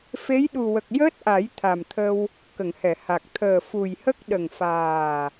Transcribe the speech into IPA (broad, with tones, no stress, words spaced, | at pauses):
fe˧˥jɗu˨˩wə˨˩k̚ jəː˦˥t̚ʔa˨˩˦j t̪ʰa˨˩mt̪ʰə˧w | kə˨˩˨ŋhɛ˨˩˨ha˨˩k̚ t̪ʰəː˨˩fu˨˩jhə˦˥k̚ ɗə˨˩ŋfaː˨˩